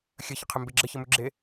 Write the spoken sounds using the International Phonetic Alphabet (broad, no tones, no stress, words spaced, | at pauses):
xʲəçəqʰembe ɡ͡ǁəçəmʉɡ͡ǁe